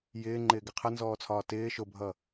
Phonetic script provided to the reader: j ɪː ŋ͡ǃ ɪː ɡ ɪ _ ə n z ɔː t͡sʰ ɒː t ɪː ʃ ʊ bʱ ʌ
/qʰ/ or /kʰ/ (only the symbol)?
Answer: qʰ